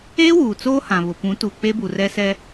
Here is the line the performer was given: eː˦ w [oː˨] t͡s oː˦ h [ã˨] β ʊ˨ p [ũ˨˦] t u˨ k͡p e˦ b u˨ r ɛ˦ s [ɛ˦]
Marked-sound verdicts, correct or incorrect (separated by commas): incorrect, correct, correct, correct